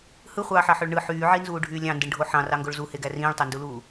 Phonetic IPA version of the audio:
h ɯ χʷ ɑː ħ ɑ ħ ø ɭ ɳ ɯ ħ yː ʕ i n z uː ɖʱ yː lʲ ɑ̃ n d ɯ ɳ ɖʱ o ħ ɑ̃ r ɑ ŋ ɡ o ɭ z u h e ɡ æ r ĩː ɭ tˤ e n d u l uː

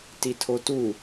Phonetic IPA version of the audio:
t i tʰ o t u

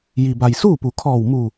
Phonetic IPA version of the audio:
j i˩ b a˩ j s uː˥˨ p u˩˧ kʰ ɔː˧˩ w m u˧˩

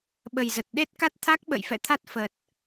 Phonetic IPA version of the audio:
ɓ ə˨˩ j z ə˨˩ t̚ ɗ e˦˥ t̚ k a˦˥ t̚ t̪ʰ a˦˥ k̚ ɓ ə̰˧˨ j f ɛ̰˧˨ t̪ʰ a˦˥ t̚ f ə˨˩ t̚

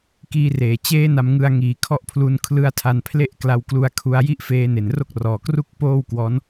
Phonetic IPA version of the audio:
k iː˦˥ r eː˨˩ t͡ɕ eː˦˥ n a˧ m ŋ ɯ˧ a̯ ŋ iː˩˦ kʰ ɔ˦˥ ʔ pʰ l u˧ n kʰ l ɯ˦˥ a̯ tʰ a˧ n pʰ l e˥˩ ʔ k l a˧ w k l u˧ a̯ kʰ u˧ a̯ j i˥˩ ʔ f eː˦˥ n e˨˩ n r o˥˩ k̚ r ɔː˨˩ k r u˥˩ k̚ p oː˥˩ w k w ɔː˦˥ n

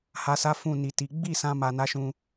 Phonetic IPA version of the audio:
h a˨ s a˨˦ f ũ˦˨ n i˨ t i˨˦ ɡ͡b i˦˨ s ã˧ m a˧ n a˦ ʃ ũ˧

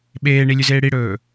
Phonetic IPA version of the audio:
ɓ eː ɳ i lʲ ʉ z eː ɽ i ɽ ɵː

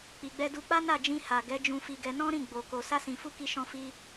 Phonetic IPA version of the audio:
k͡p i˨ ɡ͡b ɛ˧ d u˧ k͡p a˦ n a˦˨ d͡ʒ ĩ˧ h a˨ ɡ ɛ˨˦ d͡ʒ ũ˧ f i˧ ɡ ɛ˧ n ɔ̃˦ ɾ ĩ˦˨ ɡ͡b o˨ k o˨ s a˧ s ĩ˨ f u˧ k i˧ ʃ ɔ̃˧ f i˧

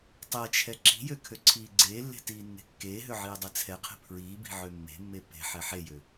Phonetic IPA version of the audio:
tˤ ɛ t͡ʃʰ ɛ ǁ i̤ j ø kʰ ø ǀʰ iː ɡ͡ǀ eː lː e̤ t iː nː e̤ kː eː ɦ ø ʕ iː dˤ ɛ t͡sʰ ɛ qʰ e̤ pʰ ɹ iː b i̤ ʕ ø mː e̤ mː e p e̤ ħ ɛ ħ e j ø

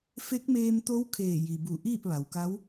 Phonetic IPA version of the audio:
f e˧˥ k̚ m eː˧ m t̪ o˧˥ w kʰ eː˧˩ j i˩ b u˧˩ ʔ iː˥˨ p̚ ʋ a˩ w k a˧˥ w

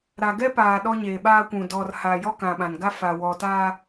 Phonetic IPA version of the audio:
ɾ a˨ ɡ ɛ˦ p aː˨ ɗ ɔ˦ ɲ eː˨ ɓ aː˦ kʷ ũ˨ d ɔ˨ r h a˨ j ɔ˦ k ã˨ ɓ ã˨ n ɡ a˦ f a˨ w ɔ˨ t aː˦

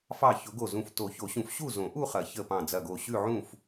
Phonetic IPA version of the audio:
f ɑ˧˩ ç ʊ˨˩˦ ɡ o˧˩ z ũ˧˩ f t o˨˩˦ ç o˨˩˦ ɕ ũ˨˩˦ f ɕ u˥˨ z õ˨˩˦ ʔ u˥˨ χ ɐ˨˩˦ ç ə˧˩ p ɑ̃˧˩ d͡z ɐ˧˩ ɡ o˧˩ ɕ ʉ˥˨ ʕ ũ˥˨ f

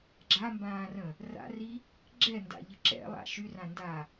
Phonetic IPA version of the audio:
ɡ͡ǁ a m b ãː r ə̃ | r a̰ r i | ɡ͡ǁ ɛ n d a̰ ʎ ə ǁ ɛ̰ lˠ a̰ ʃ y r ã n d a

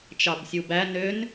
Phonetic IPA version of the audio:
t͡ʃ ɑ b sʲ u b æ n ø n

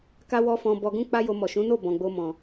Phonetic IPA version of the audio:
k a˦ w ɔ˦ f ɔ̃˧ b ɔ˧ ɡ ũ˦ k͡p a˦ j o˧ m ɔ˨ ʃ ũ˨˦ n o˦˨ b ɔ̃˨ ɡ͡b o˧ m ɔ̃˨

